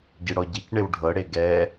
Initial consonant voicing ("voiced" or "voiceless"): voiced